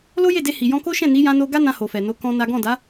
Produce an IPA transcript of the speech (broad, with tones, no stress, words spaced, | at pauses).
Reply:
lo˦je˦˨de˧ hi˨jɔ̃˧ko˦ʃɛ̃˦˨ ni˨˦jã˧no˧ ɡa˦nã˧ho˨fɛ˨ no˨˦kɔ̃˧ na˦ ɡɔ̃˦˨ da˨˦